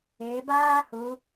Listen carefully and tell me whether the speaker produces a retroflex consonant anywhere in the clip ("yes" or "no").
no